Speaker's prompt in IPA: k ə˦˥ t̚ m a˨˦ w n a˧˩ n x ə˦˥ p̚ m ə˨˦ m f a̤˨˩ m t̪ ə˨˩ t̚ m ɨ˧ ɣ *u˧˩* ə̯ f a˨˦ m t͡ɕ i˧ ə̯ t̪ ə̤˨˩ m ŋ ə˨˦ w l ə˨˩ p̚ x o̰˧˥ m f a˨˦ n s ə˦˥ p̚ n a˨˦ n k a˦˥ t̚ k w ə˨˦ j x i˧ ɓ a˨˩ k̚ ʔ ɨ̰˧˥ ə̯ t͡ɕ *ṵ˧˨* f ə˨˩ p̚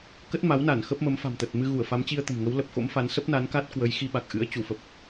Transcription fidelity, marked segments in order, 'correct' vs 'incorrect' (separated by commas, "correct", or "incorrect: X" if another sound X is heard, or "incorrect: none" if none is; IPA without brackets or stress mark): correct, incorrect: u˧˩